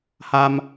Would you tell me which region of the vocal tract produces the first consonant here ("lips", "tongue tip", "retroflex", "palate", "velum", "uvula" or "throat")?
throat